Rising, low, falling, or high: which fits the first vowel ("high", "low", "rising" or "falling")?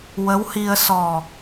rising